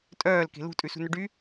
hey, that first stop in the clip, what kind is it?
ejective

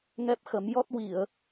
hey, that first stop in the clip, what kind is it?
plain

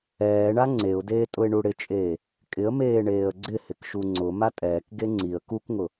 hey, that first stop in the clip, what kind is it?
click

